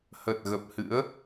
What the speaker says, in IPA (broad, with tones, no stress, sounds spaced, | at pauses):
h ə˨˩ t̚ ɣ ə˨˩ p̚ h ɨ̰˧˥ ə̯